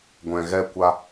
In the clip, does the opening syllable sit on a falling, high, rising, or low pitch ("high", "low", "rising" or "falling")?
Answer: low